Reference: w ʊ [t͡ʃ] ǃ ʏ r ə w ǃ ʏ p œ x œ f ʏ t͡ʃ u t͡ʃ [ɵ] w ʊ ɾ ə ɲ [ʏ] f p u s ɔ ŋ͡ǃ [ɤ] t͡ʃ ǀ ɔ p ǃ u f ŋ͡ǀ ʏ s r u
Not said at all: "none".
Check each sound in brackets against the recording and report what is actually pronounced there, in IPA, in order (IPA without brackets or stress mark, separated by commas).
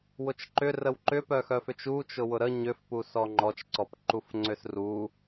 t͡ʃ, ʊ, ʏ, ɔ